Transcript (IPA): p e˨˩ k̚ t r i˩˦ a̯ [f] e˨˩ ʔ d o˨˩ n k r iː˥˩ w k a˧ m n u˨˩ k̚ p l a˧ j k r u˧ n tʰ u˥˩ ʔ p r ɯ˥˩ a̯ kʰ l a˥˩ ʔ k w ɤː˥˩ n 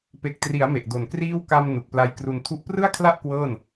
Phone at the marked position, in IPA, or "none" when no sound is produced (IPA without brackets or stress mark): m